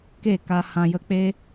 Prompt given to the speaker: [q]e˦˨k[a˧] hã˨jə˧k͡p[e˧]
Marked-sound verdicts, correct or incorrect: incorrect: k, correct, incorrect: e˦

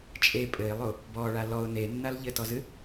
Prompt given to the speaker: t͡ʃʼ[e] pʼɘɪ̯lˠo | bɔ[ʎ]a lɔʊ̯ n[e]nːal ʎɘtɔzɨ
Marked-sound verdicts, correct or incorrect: correct, incorrect: ɭ, correct

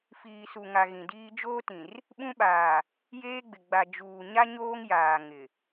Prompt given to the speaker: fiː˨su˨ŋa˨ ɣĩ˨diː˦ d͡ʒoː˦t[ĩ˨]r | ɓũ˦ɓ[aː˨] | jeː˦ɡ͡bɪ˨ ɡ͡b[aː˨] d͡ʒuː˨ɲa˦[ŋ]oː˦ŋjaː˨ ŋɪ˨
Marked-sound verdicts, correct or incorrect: correct, correct, incorrect: a˨, incorrect: ɲ

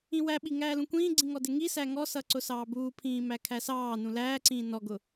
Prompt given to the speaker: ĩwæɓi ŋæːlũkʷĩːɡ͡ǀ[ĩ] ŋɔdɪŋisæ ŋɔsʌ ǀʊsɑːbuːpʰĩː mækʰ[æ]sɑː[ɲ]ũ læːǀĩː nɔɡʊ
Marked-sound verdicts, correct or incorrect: correct, correct, incorrect: n

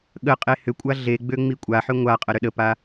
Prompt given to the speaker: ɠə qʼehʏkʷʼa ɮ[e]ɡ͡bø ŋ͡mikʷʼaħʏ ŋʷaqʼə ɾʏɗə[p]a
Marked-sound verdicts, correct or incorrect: correct, correct

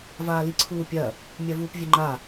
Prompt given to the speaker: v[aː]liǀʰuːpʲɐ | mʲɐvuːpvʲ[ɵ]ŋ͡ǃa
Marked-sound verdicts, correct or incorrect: correct, correct

